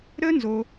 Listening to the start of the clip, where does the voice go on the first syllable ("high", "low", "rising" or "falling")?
high